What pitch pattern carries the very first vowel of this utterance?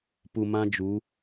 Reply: low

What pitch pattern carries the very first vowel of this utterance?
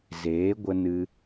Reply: rising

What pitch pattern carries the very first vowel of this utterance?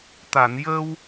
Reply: low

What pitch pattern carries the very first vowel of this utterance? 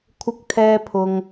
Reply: high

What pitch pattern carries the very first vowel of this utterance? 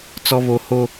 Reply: high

